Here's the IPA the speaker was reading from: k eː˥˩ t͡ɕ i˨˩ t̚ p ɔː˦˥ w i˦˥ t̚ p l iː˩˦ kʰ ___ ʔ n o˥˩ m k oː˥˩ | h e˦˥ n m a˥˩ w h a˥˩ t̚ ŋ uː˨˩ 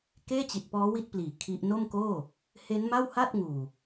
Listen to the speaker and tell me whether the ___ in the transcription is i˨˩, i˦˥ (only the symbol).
i˦˥